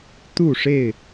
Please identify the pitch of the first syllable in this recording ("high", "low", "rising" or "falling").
falling